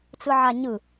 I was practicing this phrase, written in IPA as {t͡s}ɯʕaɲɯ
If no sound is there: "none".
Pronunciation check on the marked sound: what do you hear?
t͡s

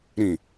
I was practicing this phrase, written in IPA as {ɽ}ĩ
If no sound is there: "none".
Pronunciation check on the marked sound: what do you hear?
ɾ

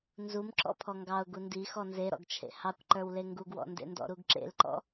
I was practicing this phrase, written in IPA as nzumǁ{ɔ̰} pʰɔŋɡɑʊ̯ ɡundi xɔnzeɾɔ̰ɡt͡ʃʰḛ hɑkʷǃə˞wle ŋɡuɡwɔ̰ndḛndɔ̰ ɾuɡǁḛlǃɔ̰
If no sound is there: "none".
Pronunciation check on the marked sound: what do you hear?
ɔ̰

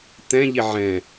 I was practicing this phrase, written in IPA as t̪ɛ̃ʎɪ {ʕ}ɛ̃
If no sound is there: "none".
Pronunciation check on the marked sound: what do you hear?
ʕ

